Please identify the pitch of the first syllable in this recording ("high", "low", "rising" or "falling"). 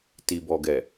low